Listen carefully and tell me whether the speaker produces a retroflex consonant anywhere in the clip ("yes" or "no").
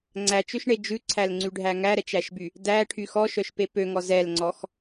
yes